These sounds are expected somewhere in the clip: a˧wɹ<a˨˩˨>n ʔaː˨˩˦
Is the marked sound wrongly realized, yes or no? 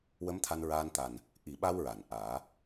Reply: no